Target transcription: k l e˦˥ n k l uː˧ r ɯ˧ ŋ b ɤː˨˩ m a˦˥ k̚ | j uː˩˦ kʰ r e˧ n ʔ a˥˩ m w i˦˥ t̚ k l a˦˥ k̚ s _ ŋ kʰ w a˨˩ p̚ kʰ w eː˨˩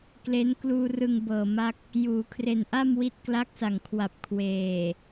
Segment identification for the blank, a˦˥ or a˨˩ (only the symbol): a˨˩